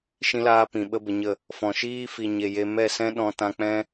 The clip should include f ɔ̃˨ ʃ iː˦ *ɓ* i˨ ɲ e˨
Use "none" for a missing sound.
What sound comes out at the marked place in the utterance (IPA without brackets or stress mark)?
f